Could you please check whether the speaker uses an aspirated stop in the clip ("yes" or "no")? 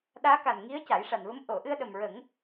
no